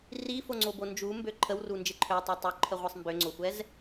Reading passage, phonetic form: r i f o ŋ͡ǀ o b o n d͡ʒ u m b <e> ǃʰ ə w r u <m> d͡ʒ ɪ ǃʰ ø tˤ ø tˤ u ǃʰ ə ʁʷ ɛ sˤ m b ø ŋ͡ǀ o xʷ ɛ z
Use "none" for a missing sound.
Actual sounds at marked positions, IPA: ø, n

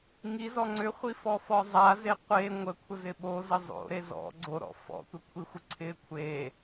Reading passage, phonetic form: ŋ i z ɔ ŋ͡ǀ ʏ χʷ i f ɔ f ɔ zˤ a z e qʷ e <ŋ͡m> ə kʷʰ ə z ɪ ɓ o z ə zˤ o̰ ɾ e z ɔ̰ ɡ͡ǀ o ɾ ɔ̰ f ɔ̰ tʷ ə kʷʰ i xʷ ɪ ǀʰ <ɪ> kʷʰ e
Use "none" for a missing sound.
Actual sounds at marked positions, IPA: ŋʷ, ɪ

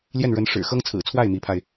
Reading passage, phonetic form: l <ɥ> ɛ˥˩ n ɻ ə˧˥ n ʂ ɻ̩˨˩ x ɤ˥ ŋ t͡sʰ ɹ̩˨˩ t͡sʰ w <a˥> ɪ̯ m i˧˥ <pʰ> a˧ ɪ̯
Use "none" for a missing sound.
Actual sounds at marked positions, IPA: j, a˥˩, pʰ

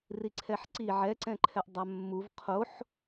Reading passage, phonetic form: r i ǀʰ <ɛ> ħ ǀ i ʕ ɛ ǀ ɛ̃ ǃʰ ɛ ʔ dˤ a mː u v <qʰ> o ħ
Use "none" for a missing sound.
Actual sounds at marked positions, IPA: ɛ, qʰ

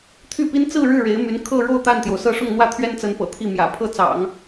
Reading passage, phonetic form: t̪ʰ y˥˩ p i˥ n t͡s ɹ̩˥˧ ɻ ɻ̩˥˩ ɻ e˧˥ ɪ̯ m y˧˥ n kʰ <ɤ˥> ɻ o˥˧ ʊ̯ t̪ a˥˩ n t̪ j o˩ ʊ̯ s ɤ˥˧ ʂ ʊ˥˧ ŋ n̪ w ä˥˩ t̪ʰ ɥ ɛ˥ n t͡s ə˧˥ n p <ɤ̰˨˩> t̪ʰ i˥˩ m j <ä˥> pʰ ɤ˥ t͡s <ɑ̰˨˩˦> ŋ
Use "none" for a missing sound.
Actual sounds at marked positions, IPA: ɤ˥˧, ɤ̰˨˩, ä̰˨˩, ɑ̰˨˩˦

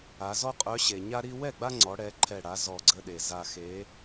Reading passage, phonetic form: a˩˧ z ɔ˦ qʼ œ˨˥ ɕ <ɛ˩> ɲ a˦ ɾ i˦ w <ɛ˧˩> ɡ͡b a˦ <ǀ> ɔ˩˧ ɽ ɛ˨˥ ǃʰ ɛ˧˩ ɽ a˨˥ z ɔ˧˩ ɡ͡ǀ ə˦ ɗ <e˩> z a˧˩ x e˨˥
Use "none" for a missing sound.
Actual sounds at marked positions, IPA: e˩, ɛ˥˩, ŋ͡ǀ, e˩

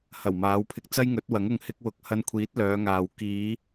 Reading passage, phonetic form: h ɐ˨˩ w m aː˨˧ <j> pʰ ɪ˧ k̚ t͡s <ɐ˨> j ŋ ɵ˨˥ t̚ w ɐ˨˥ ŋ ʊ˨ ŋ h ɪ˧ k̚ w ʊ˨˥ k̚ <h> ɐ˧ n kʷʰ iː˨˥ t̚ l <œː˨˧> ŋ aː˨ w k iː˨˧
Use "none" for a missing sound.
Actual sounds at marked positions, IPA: w, ɐ˥, h, œː˨˧

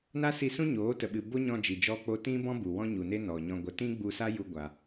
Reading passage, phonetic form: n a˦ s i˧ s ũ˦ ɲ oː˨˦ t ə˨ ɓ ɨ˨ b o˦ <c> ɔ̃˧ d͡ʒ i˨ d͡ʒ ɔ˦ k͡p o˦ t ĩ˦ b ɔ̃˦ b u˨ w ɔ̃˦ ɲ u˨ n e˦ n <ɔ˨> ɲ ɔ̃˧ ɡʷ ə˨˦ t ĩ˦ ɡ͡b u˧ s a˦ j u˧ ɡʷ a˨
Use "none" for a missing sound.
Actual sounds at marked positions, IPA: ɲ, ɔ˨

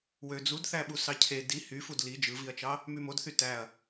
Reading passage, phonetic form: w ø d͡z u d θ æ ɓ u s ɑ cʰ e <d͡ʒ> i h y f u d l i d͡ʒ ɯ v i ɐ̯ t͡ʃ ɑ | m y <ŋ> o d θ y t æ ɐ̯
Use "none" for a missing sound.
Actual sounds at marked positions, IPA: d, m

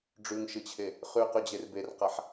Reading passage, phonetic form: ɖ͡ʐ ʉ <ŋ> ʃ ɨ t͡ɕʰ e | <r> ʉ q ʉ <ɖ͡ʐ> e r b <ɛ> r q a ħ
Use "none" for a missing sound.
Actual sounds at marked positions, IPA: ŋ, χ, d͡ʑ, e

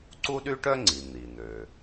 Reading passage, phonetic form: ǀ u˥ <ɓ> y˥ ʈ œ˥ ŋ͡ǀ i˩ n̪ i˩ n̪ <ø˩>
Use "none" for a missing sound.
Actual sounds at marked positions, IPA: ɗ, ø˩

